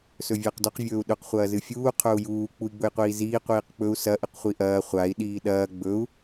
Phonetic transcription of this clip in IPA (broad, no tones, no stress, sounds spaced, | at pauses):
s ɵ vʲ ɐː q d ɵ q vʲ ɵː u̯ ɗ ɵ q χʷ ɐː z ɨ fʲ uː qʰ ɵ u̯ j uː k͡p u i̯ ɡ͡b ɵ j qʷ iː z iː qʷ iː q k͡p ɵ u̯ s ɐ ʔ ɨ q χʷ i ʔ ɐː χʷ a i̯ ɗ iː ɗ ɐː ɡ͡b ɵ u̯